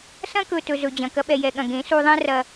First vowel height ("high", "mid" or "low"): low